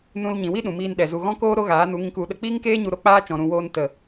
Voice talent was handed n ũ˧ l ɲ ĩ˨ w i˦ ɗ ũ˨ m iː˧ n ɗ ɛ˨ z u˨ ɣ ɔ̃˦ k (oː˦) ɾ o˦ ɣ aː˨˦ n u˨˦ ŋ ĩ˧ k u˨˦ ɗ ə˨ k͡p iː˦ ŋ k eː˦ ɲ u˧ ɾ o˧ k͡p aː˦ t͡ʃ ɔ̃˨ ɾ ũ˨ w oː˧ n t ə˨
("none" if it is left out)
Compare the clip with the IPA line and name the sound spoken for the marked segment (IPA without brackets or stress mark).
oː˦